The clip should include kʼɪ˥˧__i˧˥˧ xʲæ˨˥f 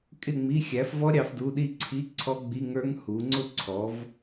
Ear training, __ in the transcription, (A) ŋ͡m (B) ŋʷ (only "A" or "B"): A